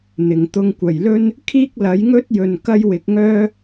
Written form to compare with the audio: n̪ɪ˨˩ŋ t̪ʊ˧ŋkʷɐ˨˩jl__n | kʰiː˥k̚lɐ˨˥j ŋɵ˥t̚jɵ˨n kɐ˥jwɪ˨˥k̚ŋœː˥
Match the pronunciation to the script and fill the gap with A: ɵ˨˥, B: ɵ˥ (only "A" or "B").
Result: B